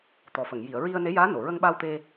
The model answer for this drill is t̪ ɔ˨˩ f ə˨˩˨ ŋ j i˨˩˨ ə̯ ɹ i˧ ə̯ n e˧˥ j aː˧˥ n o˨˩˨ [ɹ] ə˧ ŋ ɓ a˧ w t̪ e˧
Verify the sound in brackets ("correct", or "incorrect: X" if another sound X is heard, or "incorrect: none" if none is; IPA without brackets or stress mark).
correct